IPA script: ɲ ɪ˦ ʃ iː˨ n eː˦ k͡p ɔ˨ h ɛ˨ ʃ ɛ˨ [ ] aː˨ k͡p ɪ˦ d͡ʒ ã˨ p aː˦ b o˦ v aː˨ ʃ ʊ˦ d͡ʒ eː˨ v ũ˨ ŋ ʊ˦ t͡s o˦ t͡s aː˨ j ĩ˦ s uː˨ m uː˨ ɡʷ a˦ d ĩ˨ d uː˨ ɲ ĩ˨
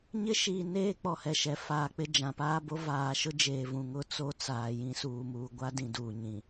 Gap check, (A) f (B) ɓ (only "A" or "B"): A